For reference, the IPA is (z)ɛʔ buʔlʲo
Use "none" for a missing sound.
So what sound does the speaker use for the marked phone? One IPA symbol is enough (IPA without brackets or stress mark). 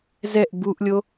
z